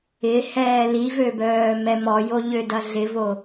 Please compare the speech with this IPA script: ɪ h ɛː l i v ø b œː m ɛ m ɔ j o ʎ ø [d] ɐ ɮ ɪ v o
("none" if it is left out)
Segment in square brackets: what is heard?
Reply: d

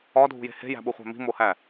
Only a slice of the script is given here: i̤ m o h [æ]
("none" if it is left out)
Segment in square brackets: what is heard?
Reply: æ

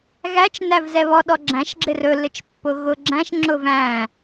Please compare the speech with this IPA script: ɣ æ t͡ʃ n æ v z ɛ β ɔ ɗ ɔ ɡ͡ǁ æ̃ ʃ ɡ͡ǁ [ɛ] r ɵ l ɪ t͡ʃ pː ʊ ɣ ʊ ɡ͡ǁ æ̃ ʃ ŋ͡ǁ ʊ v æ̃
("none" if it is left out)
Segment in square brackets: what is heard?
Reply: ɪ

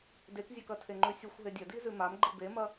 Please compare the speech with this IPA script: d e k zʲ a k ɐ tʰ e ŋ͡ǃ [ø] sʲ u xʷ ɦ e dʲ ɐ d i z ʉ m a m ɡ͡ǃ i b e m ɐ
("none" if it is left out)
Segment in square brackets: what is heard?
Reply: ʉ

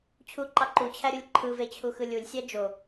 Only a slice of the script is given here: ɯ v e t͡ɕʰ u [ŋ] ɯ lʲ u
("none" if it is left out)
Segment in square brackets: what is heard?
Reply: x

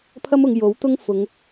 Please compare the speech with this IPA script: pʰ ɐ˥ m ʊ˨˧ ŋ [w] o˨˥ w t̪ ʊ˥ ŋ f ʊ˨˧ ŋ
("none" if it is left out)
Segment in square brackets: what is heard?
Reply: j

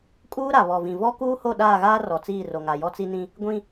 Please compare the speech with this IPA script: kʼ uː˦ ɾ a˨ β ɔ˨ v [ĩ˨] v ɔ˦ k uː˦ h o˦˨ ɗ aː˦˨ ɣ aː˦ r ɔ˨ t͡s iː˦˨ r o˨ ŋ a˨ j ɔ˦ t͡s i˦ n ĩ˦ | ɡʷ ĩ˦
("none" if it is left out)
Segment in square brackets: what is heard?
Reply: ĩ˨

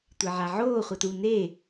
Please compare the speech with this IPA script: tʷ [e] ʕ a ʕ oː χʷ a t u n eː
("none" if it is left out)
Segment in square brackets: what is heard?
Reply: e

